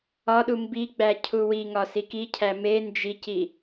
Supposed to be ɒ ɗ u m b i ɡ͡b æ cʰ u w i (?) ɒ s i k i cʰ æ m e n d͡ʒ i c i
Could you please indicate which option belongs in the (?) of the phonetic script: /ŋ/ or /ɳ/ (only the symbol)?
ŋ